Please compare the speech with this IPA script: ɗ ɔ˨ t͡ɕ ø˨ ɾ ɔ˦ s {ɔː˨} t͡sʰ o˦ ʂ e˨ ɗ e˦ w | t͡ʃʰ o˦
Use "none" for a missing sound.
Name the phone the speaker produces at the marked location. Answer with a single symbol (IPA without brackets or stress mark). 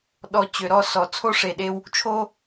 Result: ɔ˨